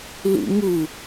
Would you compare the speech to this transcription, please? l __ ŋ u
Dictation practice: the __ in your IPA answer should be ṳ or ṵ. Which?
ṵ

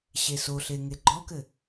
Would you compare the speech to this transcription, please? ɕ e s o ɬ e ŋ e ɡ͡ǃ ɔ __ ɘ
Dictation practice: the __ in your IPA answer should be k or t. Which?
k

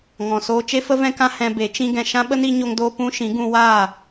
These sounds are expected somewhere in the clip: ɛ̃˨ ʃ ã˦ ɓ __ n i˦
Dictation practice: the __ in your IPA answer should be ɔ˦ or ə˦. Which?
ə˦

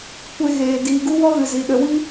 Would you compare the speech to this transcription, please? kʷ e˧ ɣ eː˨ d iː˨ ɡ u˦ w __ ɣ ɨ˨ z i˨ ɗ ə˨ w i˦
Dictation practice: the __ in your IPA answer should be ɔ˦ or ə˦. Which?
ɔ˦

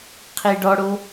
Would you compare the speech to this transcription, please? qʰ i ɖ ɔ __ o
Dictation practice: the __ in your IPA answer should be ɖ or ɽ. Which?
ɽ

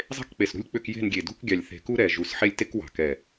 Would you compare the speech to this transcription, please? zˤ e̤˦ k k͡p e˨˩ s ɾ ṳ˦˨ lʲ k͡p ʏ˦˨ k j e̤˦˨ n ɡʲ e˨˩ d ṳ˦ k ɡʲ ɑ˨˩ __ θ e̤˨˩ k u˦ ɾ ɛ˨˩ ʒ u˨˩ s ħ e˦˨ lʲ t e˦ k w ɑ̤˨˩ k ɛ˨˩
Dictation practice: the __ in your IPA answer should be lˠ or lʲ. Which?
lʲ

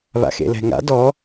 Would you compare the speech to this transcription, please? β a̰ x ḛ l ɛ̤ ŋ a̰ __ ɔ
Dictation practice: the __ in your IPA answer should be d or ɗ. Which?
d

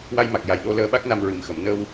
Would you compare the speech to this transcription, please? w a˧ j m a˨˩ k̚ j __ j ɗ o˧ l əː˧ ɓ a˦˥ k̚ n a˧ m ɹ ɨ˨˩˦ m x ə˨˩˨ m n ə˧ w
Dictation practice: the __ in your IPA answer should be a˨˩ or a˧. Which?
a˨˩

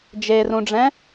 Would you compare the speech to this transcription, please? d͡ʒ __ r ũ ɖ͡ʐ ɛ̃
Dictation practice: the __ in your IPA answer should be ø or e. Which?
e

